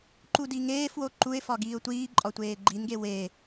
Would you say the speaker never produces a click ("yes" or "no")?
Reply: no